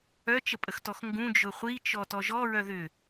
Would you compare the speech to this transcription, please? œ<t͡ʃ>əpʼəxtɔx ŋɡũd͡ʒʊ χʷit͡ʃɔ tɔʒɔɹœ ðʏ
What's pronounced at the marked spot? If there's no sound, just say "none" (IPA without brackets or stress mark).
t͡ʃ